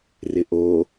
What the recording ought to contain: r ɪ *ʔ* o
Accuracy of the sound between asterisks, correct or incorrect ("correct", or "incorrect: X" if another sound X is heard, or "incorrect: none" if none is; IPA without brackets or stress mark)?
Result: correct